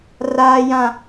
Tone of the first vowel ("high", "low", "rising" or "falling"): high